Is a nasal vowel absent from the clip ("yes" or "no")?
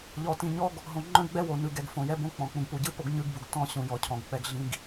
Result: no